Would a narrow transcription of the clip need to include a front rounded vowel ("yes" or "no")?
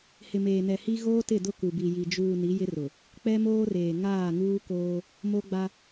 no